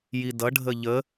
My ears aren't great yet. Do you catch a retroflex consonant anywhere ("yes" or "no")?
yes